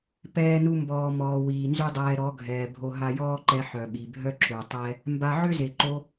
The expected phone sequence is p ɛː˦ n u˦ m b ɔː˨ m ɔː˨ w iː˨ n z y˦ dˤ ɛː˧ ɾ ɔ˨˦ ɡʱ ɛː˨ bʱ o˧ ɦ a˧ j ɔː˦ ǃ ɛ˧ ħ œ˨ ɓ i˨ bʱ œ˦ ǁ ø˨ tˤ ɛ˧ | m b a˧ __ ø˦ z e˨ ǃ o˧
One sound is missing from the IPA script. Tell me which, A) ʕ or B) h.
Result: A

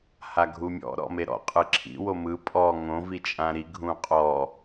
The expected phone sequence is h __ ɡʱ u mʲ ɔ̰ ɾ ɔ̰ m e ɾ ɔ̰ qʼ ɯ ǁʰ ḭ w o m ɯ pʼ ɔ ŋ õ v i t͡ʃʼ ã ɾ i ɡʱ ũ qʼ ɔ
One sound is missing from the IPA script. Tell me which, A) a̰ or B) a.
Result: B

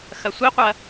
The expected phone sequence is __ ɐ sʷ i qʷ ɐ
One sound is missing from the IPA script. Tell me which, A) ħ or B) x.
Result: B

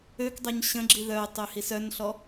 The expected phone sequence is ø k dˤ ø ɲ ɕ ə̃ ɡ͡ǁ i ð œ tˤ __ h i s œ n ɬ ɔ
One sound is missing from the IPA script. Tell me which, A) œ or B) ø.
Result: B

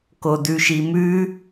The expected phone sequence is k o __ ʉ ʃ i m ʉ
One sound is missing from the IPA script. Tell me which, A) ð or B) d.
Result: B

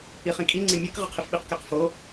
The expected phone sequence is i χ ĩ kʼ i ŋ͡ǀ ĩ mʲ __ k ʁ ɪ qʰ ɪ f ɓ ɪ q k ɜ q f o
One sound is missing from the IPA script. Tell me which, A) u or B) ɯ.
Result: B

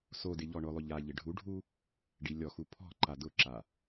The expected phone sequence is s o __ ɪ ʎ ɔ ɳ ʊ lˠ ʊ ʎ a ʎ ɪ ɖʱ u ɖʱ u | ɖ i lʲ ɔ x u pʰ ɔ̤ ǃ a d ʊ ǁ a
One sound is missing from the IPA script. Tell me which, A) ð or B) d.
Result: B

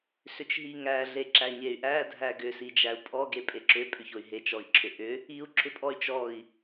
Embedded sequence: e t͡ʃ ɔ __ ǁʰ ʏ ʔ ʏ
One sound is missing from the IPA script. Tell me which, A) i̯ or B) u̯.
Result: A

